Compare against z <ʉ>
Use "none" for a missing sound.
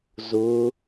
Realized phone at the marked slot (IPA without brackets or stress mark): ʊ